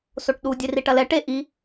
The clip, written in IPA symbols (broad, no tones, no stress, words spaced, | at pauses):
soʈɗu dʲeriʈɐlɛ ʈe ʔi